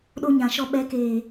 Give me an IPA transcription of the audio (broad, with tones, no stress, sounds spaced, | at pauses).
ɗ o˦ ɲ ã˨ ʃ ɔ˦ ɓ ɛ˨˦ k eː˨